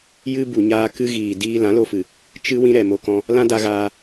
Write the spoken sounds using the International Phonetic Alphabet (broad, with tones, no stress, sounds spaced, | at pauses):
j ɨ˧ b u˨ ɲ aː˧ k ɨ˧ ɣ iː˨ d iː˦ l ã˨˦ l o˧ f ɨ˨ | t͡ʃ ɨ˦ w ĩ˧ ɾ ɛ˨ m o˧ k ɔ̃˧ | l ã˦ d a˧ ɣ aː˧